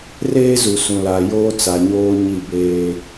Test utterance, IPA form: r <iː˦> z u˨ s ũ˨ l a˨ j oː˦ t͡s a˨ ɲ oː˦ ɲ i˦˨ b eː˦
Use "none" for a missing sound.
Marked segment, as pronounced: eː˦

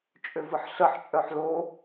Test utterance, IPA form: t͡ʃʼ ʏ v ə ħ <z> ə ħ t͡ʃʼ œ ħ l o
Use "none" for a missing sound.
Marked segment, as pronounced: ɬ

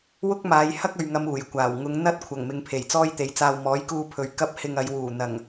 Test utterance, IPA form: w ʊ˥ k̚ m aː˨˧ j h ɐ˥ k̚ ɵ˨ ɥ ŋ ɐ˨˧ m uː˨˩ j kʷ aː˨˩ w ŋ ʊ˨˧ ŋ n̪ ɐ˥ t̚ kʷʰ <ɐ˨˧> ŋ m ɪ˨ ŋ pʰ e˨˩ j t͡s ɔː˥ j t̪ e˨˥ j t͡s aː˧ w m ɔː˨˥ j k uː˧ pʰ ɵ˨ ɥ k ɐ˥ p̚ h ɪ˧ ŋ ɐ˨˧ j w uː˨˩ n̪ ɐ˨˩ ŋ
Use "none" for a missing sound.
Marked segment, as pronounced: ɐ˨˩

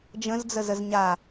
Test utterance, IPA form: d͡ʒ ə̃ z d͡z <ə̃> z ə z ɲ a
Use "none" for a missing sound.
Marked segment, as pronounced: ə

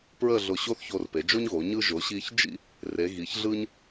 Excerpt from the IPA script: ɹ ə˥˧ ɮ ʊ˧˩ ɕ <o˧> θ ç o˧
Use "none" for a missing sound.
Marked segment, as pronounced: o˥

